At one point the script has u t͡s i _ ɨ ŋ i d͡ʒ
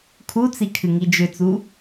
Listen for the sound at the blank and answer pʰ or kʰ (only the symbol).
kʰ